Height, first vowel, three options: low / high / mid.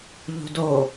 high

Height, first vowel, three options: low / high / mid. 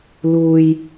high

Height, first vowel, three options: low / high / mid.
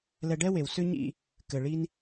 mid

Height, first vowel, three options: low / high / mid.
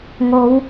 mid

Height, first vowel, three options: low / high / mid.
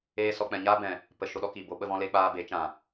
mid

